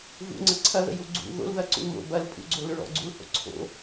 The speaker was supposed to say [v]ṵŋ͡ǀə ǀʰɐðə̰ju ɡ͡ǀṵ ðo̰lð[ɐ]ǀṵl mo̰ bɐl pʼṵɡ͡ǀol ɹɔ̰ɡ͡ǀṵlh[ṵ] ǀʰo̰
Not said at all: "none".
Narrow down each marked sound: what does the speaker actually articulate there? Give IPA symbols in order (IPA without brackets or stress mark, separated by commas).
v, ɐ, o̰